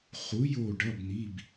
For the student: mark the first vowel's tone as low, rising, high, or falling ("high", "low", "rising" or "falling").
rising